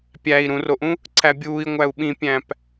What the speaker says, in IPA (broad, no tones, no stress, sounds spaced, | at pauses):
pʲ æ i̯ ɾ ũ r o ʔ ũ | ǀ æ bʲ uː i̯ ŋʷ æ u̯ ɓ ĩ pʲ æ̃ p